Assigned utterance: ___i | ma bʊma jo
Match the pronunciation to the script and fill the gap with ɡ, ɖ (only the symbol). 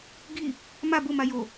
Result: ɡ